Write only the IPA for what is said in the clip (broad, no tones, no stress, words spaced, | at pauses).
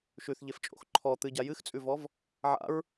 ʃʉθʎeft͡ʃʼo̰x ǃʰɔ t̪ɨɟa jɨxt͡sʼʉvɔv | ʕa̰ɹ